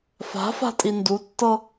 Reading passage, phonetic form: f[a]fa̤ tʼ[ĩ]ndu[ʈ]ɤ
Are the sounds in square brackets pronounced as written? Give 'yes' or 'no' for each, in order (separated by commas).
no, no, no